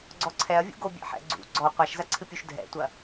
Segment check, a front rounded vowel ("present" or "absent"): absent